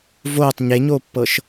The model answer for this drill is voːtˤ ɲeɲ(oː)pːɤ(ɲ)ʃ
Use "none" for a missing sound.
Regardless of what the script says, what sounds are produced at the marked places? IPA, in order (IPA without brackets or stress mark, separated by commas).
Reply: oː, none